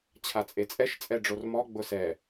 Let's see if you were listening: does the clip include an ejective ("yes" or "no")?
yes